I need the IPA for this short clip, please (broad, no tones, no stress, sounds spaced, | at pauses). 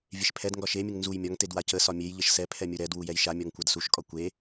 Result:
vʲ e ʃ pʰ ɛ d ŋ ɡ ɒ ʃ e mʲ ə ŋ n z u j mʲ ɒ ŋ t e d w a c ə s ɒ mʲ e j ʎ ə ʃ s ɛ pʰ ɛ mʲ u ɾ ɛ d w u j ɛ j ʃ a mʲ ɒ ŋ kʷ a d s u ʃ kʼ ɒ kʷ e